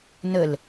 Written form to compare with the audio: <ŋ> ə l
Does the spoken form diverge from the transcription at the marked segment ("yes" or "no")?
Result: yes